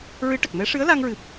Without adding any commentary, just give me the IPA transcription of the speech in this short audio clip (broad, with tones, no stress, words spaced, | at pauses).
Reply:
ɹɨ˧˥ʈə˨˩k̚mɛ˧˥ ʂɨ˧˥ə̯la˧ŋɹɨ˨˩p̚